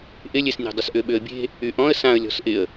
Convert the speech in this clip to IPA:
ʔɪlʲesnʲe̤dˤʏs ʔʏɓʏə̯bʲe̤ | yʔɔ̃ə̯ sãə̯ lʲɔ̤sʔɪə̯

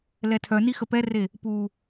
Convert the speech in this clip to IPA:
lɛtʰœni xəpɛre | pu

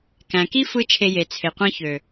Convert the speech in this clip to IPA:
kæ̃˨ki˦fɯ˧ t͡ʃʰe˧je˨t͡sʰe˨qʷɑ̃˦ çø˨

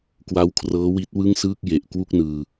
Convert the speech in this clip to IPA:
kwa˦˥wkʰrɤː˦˥wi˦˥t̚ wɯ˥˩ŋsɯː˥˩k̚ je˨˩ʔ kwu˥˩k̚nɯː˧

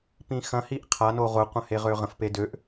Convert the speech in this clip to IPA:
pĩxɐ̃ hiʔqʰa noʁʊ qʷə̃heʁøʁə̃f pedøʔ

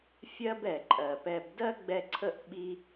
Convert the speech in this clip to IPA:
fʲɜ˦bɛ˨ǃʼɜ˨ pɛ˧b dɜ˦ɡ͡bɛ˧ǀʰə˦˨ʔ ɓi˦

